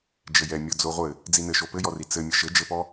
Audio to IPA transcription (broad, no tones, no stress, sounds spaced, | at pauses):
d͡ʒ ɘ j ɛ mʲ ɔ d͡z o ʁʷ ɘ | d͡z i n ɘ ʃ o p ɘ j ɔ r i t͡s ɘ mʲ ʌ ʃ ɘ d͡ʒ ɘ p ɔ